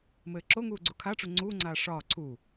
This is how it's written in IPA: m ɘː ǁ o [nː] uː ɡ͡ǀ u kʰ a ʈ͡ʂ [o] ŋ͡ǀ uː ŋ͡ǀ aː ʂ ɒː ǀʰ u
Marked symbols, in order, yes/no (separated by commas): no, no